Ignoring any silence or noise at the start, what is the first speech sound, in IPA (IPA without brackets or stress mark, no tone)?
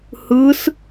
h